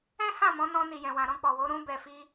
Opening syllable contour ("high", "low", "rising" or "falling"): high